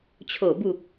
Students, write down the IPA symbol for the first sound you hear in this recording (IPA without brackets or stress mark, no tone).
t͡ɕʰ